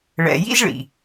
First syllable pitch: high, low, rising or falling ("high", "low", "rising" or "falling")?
low